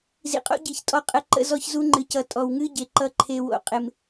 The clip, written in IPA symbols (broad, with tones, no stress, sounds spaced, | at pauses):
z ḭ˨ qʼ o̰˦ ɟ i˨ ç tʼ ɔ˦˨ qʼ ə˦˨ ǃ ə̰˦ z ɔ˦ ç z u˦ ŋ͡ǃ ɨ˨ c ʌ˨ tʼ ɔ˨ w ŋ ɨ˦ ɟ e˨ ǃ ʌ˨ ǃʰ e˨ w o̰˨ qʼ ɪ˨ m